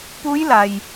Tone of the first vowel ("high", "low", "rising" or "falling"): rising